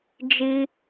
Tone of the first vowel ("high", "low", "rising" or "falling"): high